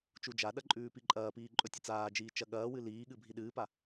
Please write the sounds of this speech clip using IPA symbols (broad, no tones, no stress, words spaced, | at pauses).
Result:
t͡ʃud͡ʒaɗɐ ǃʼʉːpiǃʼɐːpiː ǃʼɵtʲɐt͡saːd͡ʒiː t͡ʃɐɠɐːwɨ liːɠɨ bʱiɗɨːpa